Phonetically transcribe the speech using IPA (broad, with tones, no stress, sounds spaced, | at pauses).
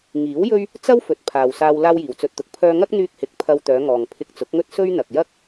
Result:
ŋ iː˨˥ w j ɵ˥ ɥ | t͡s ɐ˥ w f ɵ˨ t̚ pʰ aː˨ w s aː˧ w l aː˥ w j iː˨ w t͡s ɵ˧ t̚ t̪ ʊ˨˥ k̚ pʰ œː˧ ŋ ɐ˥ k̚ n̪ yː˧ k̚ h ɪ˨ k̚ pʰ ɐ˧ w t̪ œː˨˧ ŋ ɔː˨ ŋ pʰ ɪ˧ k̚ t͡s ʊ˨˥ k̚ ŋ ɵ˥ t̚ s ɵ˥ ɥ n̪ ɐ˨ k̚ j ɐ˥ k̚